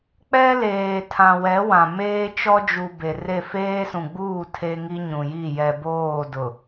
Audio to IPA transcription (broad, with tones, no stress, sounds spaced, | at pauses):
k͡p ɛ˦ l eː˨ tʰ ã˨ w ɛ˨˦ w ã˨ m eː˦ t͡ʃ ɔ˦ d͡ʒ u˨ b e˨ r e˦˨ f eː˦ s ũ˨ ɡ͡b uː˦˨ tʰ e˦ ŋ i˦ ɲ ũ˨ j i˦˨ j ɛ˨ b oː˦˨ d ʊ˨